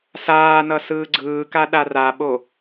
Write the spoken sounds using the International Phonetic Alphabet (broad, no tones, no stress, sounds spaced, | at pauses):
s aː n ʌ s ɯː ɡ͡ǀ ɯː k a ɗ a r a ɓ o